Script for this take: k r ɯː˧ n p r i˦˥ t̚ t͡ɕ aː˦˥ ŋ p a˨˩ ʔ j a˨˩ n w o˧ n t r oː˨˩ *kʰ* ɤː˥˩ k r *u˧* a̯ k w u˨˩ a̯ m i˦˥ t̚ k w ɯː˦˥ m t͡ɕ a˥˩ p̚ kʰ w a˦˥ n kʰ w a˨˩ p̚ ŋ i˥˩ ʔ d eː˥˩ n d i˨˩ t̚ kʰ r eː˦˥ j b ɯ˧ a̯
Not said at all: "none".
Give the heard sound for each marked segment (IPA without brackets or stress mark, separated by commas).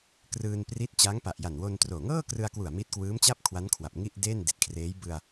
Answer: ŋ, ɯ˧